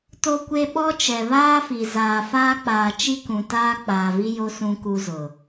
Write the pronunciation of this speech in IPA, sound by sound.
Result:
t o˦ kʷ e˦ ɓ ɔ˦ t͡ʃ ɛ˨ β aː˦ f i˨ z aː˨ f aː˦ k͡p aː˨ t͡ʃ i˦ k ũ˨ t aː˦ k͡p aː˨ v i˦ j o˦ s ũ˦ k u˦ z ʊ˨

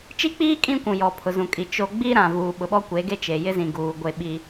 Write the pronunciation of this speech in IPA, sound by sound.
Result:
t͡ʃ i˦ k͡p iː˦ kʼ ĩ˦ kʷ ũ˨ j ɔ˨ pʰ ʊ˨ z ũ˨ kʼ i˨ t͡ʃ o˨ ɡ͡b i˦ ɾ ã˨ v uː˨ ɓ ʊ˨ ɓ ɔ˦ kʷ e˨˦ ɡ e˦ t͡ʃ e˨ j ɪ˦ z ĩ˨ ɡ uː˨ ɡʷ e˦ ɓ i˦

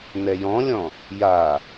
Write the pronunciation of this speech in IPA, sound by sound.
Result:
n ɛ j ɔ̃ lʲ ɔ̃ | j a

